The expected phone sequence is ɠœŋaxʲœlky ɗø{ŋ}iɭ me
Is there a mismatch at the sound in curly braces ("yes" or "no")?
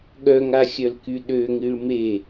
no